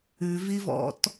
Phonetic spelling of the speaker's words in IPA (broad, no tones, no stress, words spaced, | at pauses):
ʉvivɔ̰t